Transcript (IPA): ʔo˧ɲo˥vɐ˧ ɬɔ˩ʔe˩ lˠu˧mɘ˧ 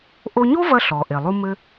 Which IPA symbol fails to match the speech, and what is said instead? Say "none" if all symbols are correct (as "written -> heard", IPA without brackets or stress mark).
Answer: none